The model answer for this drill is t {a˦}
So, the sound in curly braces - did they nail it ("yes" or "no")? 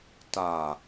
no